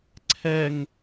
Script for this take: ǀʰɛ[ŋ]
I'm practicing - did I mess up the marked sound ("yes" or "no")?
no